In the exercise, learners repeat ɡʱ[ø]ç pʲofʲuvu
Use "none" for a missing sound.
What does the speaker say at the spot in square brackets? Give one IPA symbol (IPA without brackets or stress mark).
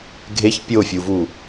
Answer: e